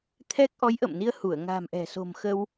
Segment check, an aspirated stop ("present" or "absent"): present